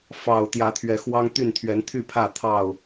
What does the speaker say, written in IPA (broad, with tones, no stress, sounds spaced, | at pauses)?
f ɑ˨˩ ʊ̯ t̪ j ä˨˦ t̪ʰ ɥ ɛ˨˦ x w ɑ˦ ŋ t̪ y˥˨ n t̪ʰ ɥ ɛ˨˦ n t̪ʰ y˥˨ pʰ ä˥˨ t̪ʰ ɑ˥˨ ʊ̯